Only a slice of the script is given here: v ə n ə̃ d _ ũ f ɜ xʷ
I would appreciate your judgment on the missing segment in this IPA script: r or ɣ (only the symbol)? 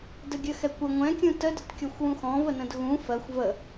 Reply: ɣ